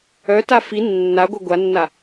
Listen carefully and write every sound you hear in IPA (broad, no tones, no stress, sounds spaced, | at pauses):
œ t a f i nː a ɡʷ œ ɡʷ a nː a